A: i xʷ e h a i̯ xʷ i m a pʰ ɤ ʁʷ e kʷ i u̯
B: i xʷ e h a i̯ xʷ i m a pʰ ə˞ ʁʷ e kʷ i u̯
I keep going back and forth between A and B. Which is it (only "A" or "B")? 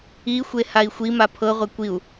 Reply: A